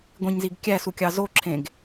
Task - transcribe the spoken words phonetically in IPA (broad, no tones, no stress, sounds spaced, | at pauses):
ɡʷ ĩ ɲ z i ɡ kʲ æ s u kʲ ɑ z o ǁʰ ẽ ɡ